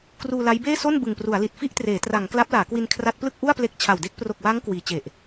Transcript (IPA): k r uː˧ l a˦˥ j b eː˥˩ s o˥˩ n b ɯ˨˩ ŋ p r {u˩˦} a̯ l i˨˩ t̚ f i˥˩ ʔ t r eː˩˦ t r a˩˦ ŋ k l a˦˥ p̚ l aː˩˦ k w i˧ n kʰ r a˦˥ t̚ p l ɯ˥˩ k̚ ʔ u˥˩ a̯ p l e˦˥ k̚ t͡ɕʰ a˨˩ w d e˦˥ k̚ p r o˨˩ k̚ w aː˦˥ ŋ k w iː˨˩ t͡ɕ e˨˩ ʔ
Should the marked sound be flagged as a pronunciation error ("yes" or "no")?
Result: no